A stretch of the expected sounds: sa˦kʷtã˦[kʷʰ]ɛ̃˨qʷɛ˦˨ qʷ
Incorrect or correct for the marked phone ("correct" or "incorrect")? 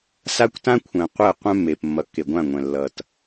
correct